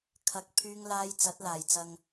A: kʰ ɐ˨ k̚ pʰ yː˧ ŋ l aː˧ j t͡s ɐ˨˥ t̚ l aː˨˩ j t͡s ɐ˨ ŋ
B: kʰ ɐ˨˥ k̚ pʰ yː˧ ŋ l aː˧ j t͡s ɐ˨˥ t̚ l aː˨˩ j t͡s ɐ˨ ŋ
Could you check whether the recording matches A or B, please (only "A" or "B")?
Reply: B